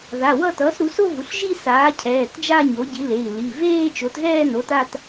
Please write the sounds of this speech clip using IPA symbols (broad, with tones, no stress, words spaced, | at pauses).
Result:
ða˩˧˩ wʌ˥˧ tʌː˩˥sɾu˩˥so˥˧vu˩˧˩ɬ ʒi˥˧saː˩˥cʰɛː˩˧˩t d͡ʒa˥˧ɲo˩˥ɟi˩˥le˩˧˩i̯ li˩˧˩ veː˥˧t͡ʃo˩˥tɣɛː˥˧no˩˥t a˥˧t